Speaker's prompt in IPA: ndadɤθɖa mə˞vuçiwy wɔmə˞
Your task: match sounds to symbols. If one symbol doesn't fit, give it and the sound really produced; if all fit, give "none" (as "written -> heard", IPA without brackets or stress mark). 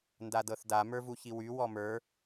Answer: ɖ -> d